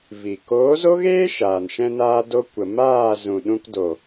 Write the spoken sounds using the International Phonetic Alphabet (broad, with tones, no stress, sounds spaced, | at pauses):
v i˨ k oː˨˦ z o˦ ɣ eː˦ ʃ aː˨ n ʃ ɛ̃˦ n aː˦ d o˧ kʷ ə˨ m aː˦˨ z ũ˨ ɗ ũ˧ k d o˨